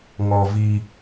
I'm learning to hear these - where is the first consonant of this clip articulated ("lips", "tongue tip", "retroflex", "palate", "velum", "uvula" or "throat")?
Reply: velum